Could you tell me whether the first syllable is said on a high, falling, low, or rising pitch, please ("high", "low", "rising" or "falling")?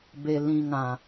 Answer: low